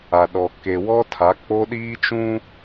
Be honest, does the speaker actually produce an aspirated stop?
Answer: yes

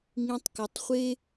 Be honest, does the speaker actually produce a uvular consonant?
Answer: yes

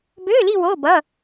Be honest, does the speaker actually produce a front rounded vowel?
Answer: yes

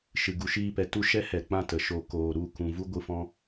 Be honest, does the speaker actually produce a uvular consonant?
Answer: no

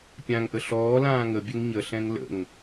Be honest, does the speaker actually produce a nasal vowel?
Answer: yes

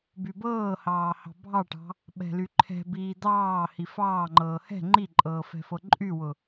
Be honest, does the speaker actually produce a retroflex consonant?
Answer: yes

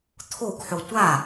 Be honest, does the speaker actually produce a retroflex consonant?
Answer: no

